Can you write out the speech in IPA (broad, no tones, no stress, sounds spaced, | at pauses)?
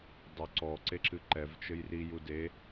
dˤ o ǀ ɔ ǀ e ǁ ɨ ǃ ɛ v t͡ʃ ɘ j r i j u d e